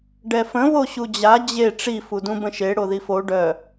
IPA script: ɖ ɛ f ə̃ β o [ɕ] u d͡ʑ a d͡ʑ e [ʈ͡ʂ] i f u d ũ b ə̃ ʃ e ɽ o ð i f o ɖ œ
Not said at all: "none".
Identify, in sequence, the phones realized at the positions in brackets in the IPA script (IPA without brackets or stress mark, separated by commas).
ɕ, ʈ͡ʂ